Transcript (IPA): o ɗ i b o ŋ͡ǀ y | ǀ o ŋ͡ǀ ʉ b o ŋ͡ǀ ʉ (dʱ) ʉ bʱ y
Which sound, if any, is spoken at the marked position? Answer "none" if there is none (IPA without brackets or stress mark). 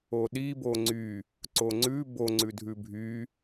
dʱ